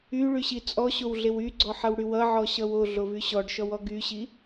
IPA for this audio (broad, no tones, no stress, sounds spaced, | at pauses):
y ɭ y ɕ i t͡sʼ ɔ ɕ o w ɮ e w y ɡ͡ǀ ɔ ħ ʌ w ɽ y w ʌ ʕ ɔ ɕ ʌ w o ɮ o v y ɕ ɔ ɖ ʃ ɔ w ɔ ɡ y ɕ i